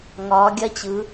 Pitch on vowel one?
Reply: rising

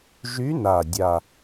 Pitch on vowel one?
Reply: rising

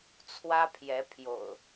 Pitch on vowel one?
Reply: high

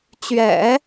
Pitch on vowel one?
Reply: low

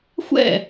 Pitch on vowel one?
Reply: falling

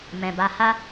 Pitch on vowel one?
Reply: low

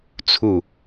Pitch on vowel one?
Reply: falling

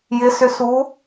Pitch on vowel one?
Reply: rising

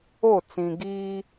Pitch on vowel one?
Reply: falling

